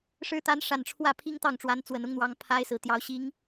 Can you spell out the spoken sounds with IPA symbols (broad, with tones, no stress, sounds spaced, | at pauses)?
ʂ ɻ̩˧˥ t̪ a˧˥ n ʂ a˨˩ n ʈ͡ʂʰ w ä˥˩ pʰ i˥ ŋ t̪ ɑ˥˩ ŋ ʈ͡ʂ w a˧˥ n t͡s w ə˨˩ n ʊ˥ ŋ n̪ w ɑ˧˥ ŋ pʰ a˥ ɪ̯ s ɹ̩˨˩ t̪ j ɑ˧˥ ʊ̯ ɕ i˧˥ ŋ